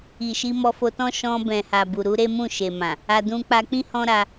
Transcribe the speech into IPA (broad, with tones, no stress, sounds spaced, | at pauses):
i˨ ʃ i˧ m ɔ˧ f o˧ t ɔ̃˦ ʃ ɔ̃˧ b ɛ̃˨ h a˨ b u˨ ɾ u˧ ɾ e˦ m ũ˦˨ ʃ e˨ m ã˨ | a˧ d ũ˧ k͡p a˧ k͡p ĩ˦ h ɔ̃˦ ɾ a˧